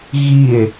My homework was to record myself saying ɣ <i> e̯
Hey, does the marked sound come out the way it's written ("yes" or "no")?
yes